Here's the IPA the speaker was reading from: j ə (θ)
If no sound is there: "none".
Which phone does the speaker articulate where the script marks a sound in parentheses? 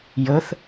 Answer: θ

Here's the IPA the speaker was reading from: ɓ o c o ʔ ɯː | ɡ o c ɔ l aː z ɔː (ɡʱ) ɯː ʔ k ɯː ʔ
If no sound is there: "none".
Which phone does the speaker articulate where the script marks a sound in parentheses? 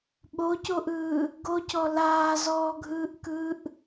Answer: ɡʱ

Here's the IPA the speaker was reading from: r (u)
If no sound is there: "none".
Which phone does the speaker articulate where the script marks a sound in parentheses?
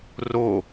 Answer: o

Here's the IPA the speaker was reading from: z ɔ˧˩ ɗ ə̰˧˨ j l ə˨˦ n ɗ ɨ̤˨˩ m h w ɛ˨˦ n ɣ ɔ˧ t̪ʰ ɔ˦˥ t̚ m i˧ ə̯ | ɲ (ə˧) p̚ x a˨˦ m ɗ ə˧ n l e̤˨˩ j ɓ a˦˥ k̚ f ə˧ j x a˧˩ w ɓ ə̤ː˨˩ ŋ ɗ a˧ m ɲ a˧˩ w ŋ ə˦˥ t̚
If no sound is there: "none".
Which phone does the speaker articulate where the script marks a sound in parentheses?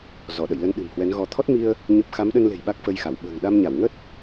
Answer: ə˦˥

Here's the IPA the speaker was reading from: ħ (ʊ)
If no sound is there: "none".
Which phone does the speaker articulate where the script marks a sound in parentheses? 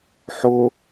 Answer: ʊ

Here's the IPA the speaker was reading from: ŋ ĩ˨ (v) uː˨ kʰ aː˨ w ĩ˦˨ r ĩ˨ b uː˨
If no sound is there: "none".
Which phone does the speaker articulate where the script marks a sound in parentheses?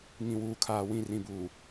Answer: w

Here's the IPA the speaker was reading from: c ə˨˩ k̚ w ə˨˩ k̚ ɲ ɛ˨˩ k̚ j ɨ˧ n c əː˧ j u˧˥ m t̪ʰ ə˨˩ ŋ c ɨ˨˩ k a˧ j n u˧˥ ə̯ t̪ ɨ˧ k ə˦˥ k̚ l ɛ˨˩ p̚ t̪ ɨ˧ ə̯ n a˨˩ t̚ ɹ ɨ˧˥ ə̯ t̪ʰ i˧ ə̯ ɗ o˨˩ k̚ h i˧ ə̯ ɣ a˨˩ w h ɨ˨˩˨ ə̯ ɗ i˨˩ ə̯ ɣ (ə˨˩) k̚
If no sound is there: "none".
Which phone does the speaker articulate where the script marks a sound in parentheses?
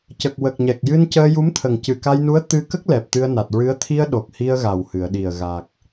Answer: a˨˩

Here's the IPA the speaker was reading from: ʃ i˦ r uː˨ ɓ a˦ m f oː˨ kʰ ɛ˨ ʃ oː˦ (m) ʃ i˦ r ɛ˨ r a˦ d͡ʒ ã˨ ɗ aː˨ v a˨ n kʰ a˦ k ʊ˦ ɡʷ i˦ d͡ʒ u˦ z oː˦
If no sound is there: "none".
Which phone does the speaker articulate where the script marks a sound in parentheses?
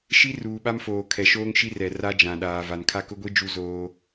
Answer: ŋ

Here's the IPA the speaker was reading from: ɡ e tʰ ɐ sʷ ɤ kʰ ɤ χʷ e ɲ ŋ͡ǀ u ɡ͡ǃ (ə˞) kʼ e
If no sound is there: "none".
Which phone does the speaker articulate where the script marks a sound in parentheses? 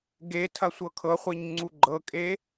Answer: ɤ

